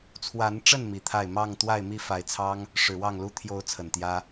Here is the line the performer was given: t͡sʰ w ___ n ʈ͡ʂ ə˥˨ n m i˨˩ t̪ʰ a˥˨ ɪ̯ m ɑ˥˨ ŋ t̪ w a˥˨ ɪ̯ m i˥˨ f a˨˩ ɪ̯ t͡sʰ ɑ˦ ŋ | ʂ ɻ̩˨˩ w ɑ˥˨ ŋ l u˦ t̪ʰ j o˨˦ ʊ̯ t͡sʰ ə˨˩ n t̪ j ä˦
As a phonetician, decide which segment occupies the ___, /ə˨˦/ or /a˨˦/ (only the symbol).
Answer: a˨˦